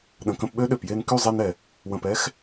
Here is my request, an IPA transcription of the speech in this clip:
ɗ ə̃˨ k ə̃˧ p ɓ ø˦ ɗ ø˨ p j e˧ n k y˦˨ zˤ e˧ n ɛ˨ | w ə̃˨ p ɛ˦ x

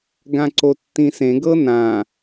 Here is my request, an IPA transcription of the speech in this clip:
ɡ ã ǀ o tː ĩ s ẽ ɡ ɤ n ã

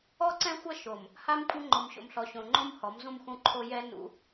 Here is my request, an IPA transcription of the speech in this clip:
ɔ˦ ǀ ɛ̃˦ xʷ ɐ˦ ʃ o˨ m | h a˦ m kʷʼ ɘ˦ ŋ͡ǃ o˨ m ɕ o̰˨ m ɬ ɔ˨ ɕ õ˨ ŋ͡ǃ õ˦ m h ɔ˨˦ m z ũ˦ m x ũ˦ ǃʰ o˦ j ɛ˦ n ṵ˦

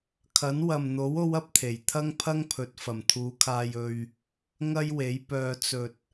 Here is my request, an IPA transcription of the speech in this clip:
kʰ ɐ˨˥ n w ɐ˨ m n̪ o˨˥ w o˥ w ɐ˥ p̚ t̪ʰ e˨˩ j t̪ʰ ɐ˥ ŋ pʰ ɐ˥ ŋ pʰ ɵ˨˥ t̚ f ɐ˨˩ m t̪ʰ uː˨˧ kʰ aː˧ j ɵ˧ ɥ | ŋ ɐ˥ j w e˨˥ j p œː˧ t͡s ɵ˧ t̚

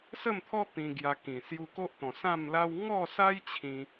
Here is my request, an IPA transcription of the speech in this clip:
s ə˥˧ m t̪ʰ ɔ˦ t̪ ĩ˧ ɡ j a˧ k ĩ˨˩ s j u˧ k o˦ ʔ t̪ ɔ̃˨˩ s ã˥˧ m l a˦ w ŋ ɔ˥˧ s a˦ j t͡ɕʰ ĩ˧

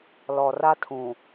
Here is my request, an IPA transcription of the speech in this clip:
l ɔ˨ r a˦ tʰ ũ˨

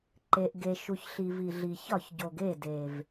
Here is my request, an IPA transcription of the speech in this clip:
ǃ e˨ ʔ ɡ e˨ ʃ u˨ ç ɬ i˨ v i˨ ɮ i˨ ç ɒ˦˨ ç ɟ o˨ ɡ e˦˨ d e˨ v

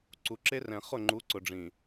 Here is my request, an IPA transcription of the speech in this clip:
ǀ u˨ ǁ e˦ r ɛ̃˨ χ ʊ˦˨ ŋ͡ǃ u˨˦ ǀ ʊ˨ ɖ͡ʐ ĩ˨

